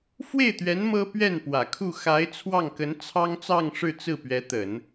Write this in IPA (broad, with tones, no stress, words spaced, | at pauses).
fwe˥˩ɪ̯t̪ɥɛ˧˥n mɤ˥ pɥɛ˥˩npwä˨˩kʰu˥˩ xa˧˥ɪ̯ t͡sʰwɑ˥˩ŋkə˧˥n t͡sʰɑ˥ŋt͡sɑ˥˧ŋʂɻ̩˥˧ t͡sɹ̩˥˩pɥɛ˧˥t̪ə˨˩˦n